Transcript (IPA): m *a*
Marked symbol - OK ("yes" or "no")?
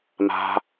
no